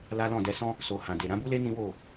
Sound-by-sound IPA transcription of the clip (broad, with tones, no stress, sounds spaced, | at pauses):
l a˦ l ɔ̃˦˨ d ɛ˨˦ s ɔ̃˦ | s o˨ h ã˨ d e˨ ɾ ã˨˦ b u˦ l e˦ n ĩ˦ w o˦˨